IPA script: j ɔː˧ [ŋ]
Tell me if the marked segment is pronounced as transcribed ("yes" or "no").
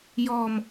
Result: no